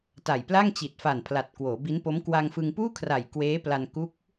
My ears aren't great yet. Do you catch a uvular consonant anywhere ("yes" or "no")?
no